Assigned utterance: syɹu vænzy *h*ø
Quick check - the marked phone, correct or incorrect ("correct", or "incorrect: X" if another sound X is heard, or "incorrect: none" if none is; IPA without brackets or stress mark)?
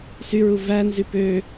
incorrect: p